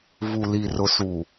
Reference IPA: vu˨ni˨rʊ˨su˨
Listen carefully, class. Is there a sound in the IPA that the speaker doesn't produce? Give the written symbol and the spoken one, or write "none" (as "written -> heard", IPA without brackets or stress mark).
n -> l